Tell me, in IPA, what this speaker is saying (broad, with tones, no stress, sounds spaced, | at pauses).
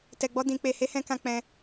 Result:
t ɛ˨ ɡ͡b ɔ˧ d ĩ˨ k͡p e˨ h e˨˦ h ɛ̃˧ k ã˧ k͡p ɛ̃˧